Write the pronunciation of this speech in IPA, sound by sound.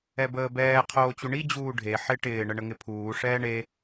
ɛ b əː b ɛː qʰ oː t͡ɕ u ɳ i d͡ʑ uː ɖʱ e ħ ɪ ʈ ɪː ɳ ə ɳ ə ŋ ɪ pʰ uː ʂ ɛː ɳ e

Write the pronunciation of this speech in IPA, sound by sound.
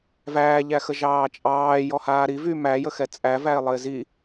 v æː ʎ æ x ə ʒ ɑː t͡ʃʼ ɑː j ɔ h aː ɾ i v y m æ j ə x ɛ t͡sʼ æ v æ ɪ̯ lˠ ə ɪ̯ z i

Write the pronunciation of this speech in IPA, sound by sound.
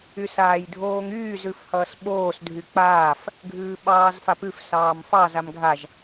y s aː j dʱ oː ŋ yː z ʉ f h ʌː s ɓ oː s dʱ y k͡p aː f | ɡʱ ʉː ɓ ɑː z f a p ʉ f s ɑː m f ɑ z a m ɡʱ a ʒ

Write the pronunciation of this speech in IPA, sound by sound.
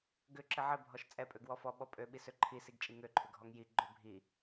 ɡ ʏ ǁ ɘ ʕ ɘ bʱ ɔ ʃ t͡sʼ ɛ pʼ ø ɡ w ɔ f ɔ ɓ ɔ pʼ ø ɓ i s ø ǃʰ i s i ɡ t͡ʃʼ i ŋ ø ǃʰ ʏ ɡʱ ɔ ŋ j i ɡ͡ǃ ø bʱ i

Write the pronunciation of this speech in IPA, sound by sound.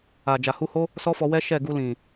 a˨ d͡ʒ a˨ h u˧ h o˦ | s ɔ˦ f ɔ˧ w ɛ˦ ʃ ɛ˦˨ ɡ u˧ l ĩ˨

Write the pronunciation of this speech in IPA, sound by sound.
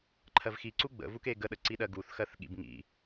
ǃʰ ɜ v x i ǀ u ɡ͡b ə̰ v u k e ɡ ə ɗ ə ǀ i ɗ ɜ ɡ u θ x ɜ θ ɠ ḭ b ŋ ḭ

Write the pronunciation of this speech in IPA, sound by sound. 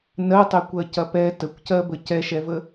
n ɜ tˤ e kʷ ɜ c ɐ p ɛ t ə kʷ c ɜ b ə c ɛ ʃ ɛ v ə

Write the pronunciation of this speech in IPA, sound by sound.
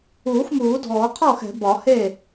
uː˨˩˦ x m uː˨˩˦ dʱ ɔː˨˩˦ qʰ ɔː˥˩ x ɛ̤˨˩˦ b ɒ˨˩˦ h e˥˩

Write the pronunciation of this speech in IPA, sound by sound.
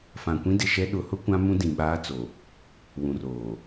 f ã˨ kʷ ĩ˦ d ɪ˨ ʃ ɛ˦ ɗ ʊ˨˦ h ʊ˦ kʷ ã˦ m ũ˦ d ĩ˨ ɓ aː˦ t͡s o˨ | w ũ˨ r oː˨

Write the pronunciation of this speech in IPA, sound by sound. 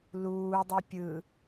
l uː dˤ o pʲ ɯ

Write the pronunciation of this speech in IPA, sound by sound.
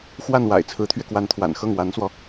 x w a˥˩ n w a̰˨˩ ɪ̯ t͡sʰ ɹ̩˧˥ t̪ʰ ɥ ɛ˧ k w a˧˥ n t̪ʰ w a̰˨˩ n x ɤ˥˩ ŋ w a˧˥ n s w ɔ˧

